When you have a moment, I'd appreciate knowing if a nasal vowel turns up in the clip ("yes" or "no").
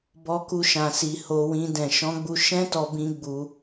yes